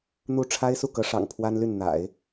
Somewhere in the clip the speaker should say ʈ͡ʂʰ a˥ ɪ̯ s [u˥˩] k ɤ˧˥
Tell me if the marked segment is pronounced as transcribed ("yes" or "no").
yes